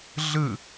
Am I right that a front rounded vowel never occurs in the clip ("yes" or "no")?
yes